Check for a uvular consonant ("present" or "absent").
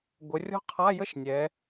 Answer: present